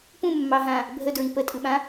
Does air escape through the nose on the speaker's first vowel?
yes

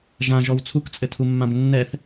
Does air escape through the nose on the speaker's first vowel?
yes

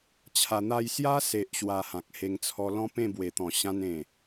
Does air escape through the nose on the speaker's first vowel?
no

